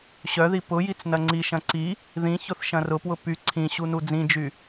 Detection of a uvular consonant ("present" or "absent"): absent